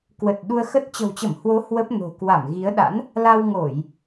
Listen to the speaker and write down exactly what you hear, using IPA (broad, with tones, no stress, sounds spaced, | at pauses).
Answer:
k w ə˨˩ t̚ ɗ u˧ ə̯ x ə˦˥ t̚ t͡ɕ ə̤˨˩ w t͡ɕ ə˧˩ m h w o˨˦ h w ə˦˥ p̚ n o̤˨˩ k w a˧˩ m ɣ i˨˦ ə̯ ɗ a̰˧˥ n | l a˧ w ŋ o˧˩˨ j